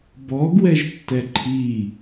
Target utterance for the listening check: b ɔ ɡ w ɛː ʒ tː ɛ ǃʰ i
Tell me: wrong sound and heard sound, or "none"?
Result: ɛː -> ɛ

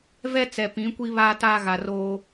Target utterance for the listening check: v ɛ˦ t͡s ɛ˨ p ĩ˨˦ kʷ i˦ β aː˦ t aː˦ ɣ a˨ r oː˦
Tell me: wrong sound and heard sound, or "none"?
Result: none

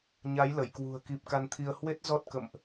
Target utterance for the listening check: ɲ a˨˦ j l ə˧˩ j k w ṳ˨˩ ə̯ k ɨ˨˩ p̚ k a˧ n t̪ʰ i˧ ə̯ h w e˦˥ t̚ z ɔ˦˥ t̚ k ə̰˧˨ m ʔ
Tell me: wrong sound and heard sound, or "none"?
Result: ɨ˨˩ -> i˨˩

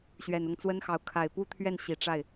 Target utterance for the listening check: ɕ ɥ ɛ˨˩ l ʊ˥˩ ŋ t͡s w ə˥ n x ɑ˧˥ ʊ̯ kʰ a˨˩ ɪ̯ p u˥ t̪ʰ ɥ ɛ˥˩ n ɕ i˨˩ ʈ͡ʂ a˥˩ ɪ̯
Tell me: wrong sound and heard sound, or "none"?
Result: l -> n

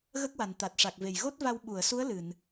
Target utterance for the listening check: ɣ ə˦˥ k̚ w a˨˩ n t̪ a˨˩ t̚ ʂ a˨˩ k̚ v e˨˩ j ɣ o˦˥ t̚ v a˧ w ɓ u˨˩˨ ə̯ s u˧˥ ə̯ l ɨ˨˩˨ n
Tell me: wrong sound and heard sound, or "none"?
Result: none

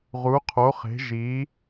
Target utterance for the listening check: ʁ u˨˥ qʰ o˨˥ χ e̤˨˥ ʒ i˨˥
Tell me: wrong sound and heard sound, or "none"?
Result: none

